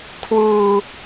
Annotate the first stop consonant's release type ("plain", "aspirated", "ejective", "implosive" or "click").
aspirated